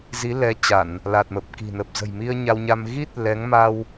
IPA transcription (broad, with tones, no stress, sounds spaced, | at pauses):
z i˨˦ l ɛ˨˦ t͡ɕ a˧˩˨ n | l a˨˩ t̚ m ə˨˩ p̚ k i̤˨˩ n ə˨˩ p̚ z ə̤˨˩ j m i˧ ə̯ ɲ a˧ w ɲ a˧ m ɣ i˦˥ t̚ l ɛ˨˦ ŋ m a˧ w